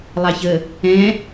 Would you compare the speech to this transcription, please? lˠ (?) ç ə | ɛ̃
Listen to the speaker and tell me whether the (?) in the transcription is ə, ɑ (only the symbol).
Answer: ɑ